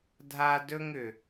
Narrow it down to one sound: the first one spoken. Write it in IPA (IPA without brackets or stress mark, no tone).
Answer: dʱ